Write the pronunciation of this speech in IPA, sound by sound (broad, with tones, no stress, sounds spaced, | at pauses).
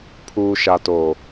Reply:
pʰ uː˨ ʃ a˨ t oː˨